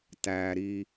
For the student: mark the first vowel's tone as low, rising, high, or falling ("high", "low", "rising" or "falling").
low